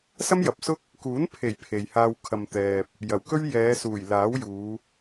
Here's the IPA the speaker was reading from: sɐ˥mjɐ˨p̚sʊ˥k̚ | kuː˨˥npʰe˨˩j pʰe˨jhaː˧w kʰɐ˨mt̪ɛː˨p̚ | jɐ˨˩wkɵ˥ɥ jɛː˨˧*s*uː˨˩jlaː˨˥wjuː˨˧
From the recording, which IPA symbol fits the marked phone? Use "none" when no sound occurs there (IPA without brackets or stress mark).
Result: s